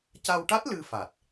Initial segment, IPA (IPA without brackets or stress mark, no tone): c